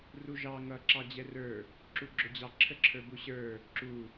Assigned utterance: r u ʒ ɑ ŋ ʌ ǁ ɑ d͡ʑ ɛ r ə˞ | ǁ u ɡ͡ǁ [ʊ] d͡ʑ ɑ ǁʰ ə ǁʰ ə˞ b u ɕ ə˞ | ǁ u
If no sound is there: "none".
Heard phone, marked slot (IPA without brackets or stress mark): ʊ